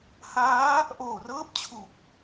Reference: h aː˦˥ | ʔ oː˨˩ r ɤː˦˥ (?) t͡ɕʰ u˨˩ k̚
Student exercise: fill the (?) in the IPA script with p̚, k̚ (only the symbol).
p̚